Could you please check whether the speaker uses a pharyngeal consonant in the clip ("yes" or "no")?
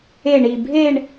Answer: no